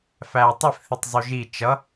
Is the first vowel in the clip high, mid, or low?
low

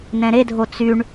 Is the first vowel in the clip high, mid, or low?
mid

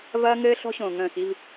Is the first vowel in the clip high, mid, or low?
low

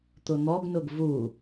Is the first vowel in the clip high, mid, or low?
high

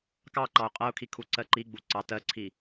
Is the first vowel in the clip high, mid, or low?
low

